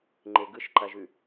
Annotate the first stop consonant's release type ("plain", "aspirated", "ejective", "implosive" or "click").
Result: click